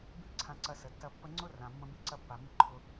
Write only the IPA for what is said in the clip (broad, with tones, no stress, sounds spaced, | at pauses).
b i˥ ǀʰ ã˧ ǀ ɐ˧ s ə˩ tː ɐ˧ pː ə˧ ŋ͡ǀ ʊ˥ r ã˩ mː ə̃˧ b i˧ ǀ ɐ˧ pː a˩ m i˧ ǃʰ ʊ˧